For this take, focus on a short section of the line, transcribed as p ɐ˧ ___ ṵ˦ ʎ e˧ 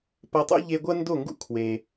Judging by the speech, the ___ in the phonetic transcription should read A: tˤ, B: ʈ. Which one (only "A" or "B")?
A